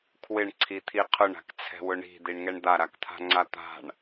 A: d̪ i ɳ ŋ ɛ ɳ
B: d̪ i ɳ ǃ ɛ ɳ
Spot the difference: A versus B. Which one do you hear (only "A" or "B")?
A